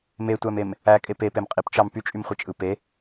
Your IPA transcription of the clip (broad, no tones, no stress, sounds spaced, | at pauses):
m e tʷ æ m e m | æ kʼ e p e p e m qʼ i p t͡ʃ ɑ m p y t͡ʃʼ y m χʷ i t͡ʃʼ ɯ p e